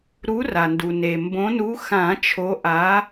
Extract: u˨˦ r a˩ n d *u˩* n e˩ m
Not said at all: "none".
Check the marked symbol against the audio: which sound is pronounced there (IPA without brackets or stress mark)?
u˩